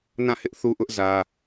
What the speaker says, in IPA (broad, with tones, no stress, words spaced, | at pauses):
nã˦˨hɪ˦ʔ θu˦ʔʊ˦ʔ zä˦